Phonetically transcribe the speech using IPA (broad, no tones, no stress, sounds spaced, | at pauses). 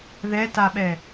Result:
ð ɛ t a ɓ ɛ